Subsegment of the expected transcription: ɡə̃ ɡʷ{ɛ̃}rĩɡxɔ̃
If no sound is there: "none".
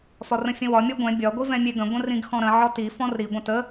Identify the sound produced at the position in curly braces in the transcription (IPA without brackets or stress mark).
ə̃